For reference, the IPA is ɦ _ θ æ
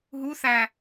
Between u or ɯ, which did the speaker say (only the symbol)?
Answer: u